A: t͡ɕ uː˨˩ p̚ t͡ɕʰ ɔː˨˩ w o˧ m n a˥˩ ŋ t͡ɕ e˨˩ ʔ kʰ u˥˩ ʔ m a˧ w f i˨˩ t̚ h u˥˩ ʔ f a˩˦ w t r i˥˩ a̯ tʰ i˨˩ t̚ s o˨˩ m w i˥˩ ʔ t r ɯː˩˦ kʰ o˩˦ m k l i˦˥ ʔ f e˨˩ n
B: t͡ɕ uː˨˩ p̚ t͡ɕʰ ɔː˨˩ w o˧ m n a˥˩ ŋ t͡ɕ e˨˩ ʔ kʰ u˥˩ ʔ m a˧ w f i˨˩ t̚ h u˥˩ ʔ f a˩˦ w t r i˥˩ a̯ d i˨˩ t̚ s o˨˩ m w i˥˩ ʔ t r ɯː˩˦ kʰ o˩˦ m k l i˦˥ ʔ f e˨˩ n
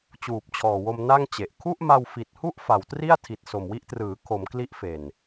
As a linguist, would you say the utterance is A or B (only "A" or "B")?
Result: A